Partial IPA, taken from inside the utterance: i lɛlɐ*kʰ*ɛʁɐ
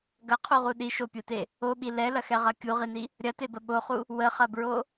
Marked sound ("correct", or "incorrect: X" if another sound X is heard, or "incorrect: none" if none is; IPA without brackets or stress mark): incorrect: x